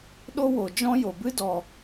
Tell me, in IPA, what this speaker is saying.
ɗ o˦ w o˨ d͡ʒ ɔ̃˦ j o˨ b ɨ˦ d ɔ˨

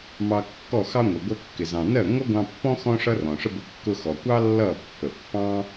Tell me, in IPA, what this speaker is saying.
m ɑ˧ kː ɔ˦˨ x ɑ˦ ŋʷ ə˨ ɡʷ ɜ˧ kː ɪ˨ z ɑ̃˨ n ɜ˦˨ ŋʷ ʌ˦ ɡʷ ɑ̃˧ pː ɔ̃˦ x ɔ̃˦ ʂ ʌ˦ r ɔ̃˨ ʂ ə˦ b ʊ˧ kː ʊ˧ x ɔ˨ kʷ ɑ˦ lː ʌ˦˨ pː ə˨ pː ɑ̃˦

